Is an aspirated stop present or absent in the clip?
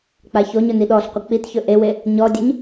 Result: absent